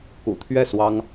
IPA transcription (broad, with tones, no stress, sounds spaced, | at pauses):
k ṵ˨˩ t̪ʰ ɥ ɛ˥˩ s w ɑ˥ ŋ